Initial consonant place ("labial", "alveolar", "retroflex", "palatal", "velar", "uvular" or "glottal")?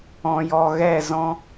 palatal